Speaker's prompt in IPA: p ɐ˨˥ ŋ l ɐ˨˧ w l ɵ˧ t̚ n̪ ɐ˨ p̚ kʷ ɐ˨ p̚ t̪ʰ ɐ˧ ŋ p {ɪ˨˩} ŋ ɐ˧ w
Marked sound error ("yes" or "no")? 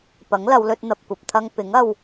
yes